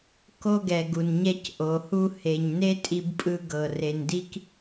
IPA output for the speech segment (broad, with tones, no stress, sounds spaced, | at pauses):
k o˧ ɡ ɛ˩ ɡ u˩ n ɲ ɛ˧ c ʔ o˩ h u˧ h e˩ ɲ n e˧ tʼ i˧ b pʼ ɯ˧ ɡ ɤ˩ r e˩ n d i˥ k